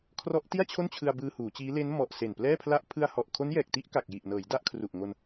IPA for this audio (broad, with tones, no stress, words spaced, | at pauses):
kʰrɔ˦˥ʔti˥˩a̯t͡ɕʰo˥˩nt͡ɕʰɯ˧a̯ bɯː˧huː˩˦t͡ɕiː˦˥ le˦˥n mɔ˨˩ʔ se˨˩nplɛː˥˩pʰla˥˩ʔ pʰɯ˧a̯hɔ˨˩ʔ kʰo˦˥njɛː˨˩k̚ti˥˩ʔka˨˩k̚ ji˨˩ʔnɤː˩˦j da˥˩ʔkʰru˨˩ʔŋo˧n